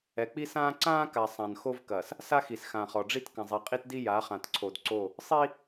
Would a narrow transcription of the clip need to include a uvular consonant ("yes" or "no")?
yes